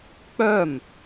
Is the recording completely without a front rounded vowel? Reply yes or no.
no